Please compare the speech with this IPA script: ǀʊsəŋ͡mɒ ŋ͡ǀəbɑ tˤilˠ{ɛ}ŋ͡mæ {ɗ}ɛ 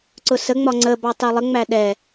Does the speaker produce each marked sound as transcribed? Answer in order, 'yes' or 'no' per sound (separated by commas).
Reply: no, yes